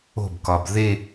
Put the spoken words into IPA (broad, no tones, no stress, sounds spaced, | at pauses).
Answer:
o̤ b k ɒ b ð e